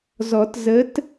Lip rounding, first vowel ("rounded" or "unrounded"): rounded